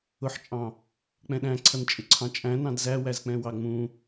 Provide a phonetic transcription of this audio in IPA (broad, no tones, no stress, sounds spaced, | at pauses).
ʊ ħ t͡ʃʼ ɑ̃ | k͡p ɛ̃ ɗ æ̃ ǀʰ ʌ n t͡ʃʼ ɪ ǀʰ ɑ̃ t͡ʃʼ æ̃ n ɑ̃ d z æ w æ z k͡p ɛ̃ w ɑ ŋ͡m ũ